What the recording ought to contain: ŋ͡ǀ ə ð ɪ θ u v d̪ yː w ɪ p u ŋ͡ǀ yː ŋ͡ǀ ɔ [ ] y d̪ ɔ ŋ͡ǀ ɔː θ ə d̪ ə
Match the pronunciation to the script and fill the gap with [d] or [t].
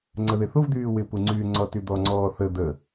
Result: t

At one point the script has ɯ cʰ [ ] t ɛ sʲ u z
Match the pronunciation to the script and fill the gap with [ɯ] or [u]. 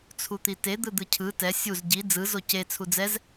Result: ɯ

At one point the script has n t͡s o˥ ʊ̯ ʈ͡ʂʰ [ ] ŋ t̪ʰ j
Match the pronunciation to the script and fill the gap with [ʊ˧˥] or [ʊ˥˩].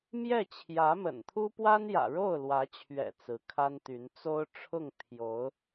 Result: ʊ˥˩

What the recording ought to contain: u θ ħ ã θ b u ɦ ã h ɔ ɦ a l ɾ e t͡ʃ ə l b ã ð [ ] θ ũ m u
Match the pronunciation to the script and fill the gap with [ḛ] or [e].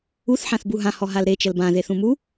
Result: e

